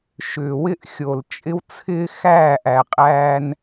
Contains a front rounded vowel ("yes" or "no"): yes